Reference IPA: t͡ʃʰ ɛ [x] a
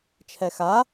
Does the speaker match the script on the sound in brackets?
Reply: yes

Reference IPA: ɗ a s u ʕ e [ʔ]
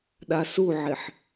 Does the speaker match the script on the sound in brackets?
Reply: no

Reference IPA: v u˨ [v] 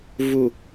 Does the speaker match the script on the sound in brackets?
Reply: no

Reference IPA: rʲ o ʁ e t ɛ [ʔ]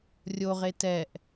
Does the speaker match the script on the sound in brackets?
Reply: yes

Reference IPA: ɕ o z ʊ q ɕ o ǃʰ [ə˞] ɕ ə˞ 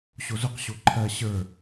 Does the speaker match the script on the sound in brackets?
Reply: no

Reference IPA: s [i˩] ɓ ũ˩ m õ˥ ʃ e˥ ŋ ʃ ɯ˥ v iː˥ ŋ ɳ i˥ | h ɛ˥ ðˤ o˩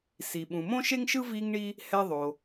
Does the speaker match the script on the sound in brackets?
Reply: yes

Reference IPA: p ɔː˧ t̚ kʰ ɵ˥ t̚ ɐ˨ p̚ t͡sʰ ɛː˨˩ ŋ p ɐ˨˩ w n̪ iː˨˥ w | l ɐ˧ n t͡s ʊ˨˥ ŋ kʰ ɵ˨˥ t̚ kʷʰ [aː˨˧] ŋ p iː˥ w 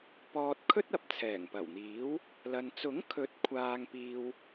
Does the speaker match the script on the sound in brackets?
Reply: no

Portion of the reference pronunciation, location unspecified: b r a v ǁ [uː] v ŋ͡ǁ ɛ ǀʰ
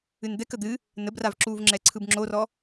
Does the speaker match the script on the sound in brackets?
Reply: yes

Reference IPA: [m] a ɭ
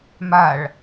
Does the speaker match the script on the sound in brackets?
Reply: yes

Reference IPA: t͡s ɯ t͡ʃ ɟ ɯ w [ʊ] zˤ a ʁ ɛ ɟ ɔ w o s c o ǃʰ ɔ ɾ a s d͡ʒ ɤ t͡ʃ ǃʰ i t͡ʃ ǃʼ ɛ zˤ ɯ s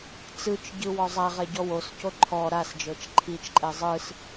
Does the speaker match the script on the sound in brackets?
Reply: no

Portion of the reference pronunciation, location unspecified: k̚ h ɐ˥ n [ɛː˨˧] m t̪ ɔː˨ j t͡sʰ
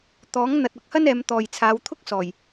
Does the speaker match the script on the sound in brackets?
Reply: yes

